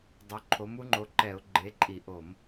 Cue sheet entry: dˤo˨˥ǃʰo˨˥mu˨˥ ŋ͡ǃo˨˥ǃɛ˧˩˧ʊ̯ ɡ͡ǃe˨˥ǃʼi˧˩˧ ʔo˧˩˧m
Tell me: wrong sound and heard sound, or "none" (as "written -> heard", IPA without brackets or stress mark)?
none